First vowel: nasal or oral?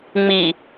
oral